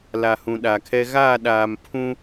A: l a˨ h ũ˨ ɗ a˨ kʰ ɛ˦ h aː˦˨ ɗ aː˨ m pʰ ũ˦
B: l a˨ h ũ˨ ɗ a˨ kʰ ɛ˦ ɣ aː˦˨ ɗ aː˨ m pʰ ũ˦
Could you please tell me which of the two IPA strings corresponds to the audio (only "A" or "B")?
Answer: B